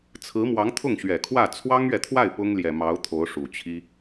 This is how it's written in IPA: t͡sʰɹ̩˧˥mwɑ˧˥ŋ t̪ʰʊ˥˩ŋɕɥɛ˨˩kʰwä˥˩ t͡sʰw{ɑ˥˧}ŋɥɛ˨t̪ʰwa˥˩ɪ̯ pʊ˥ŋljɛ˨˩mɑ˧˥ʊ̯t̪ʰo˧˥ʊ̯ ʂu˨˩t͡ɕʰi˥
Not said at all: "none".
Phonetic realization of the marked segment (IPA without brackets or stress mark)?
ɑ˥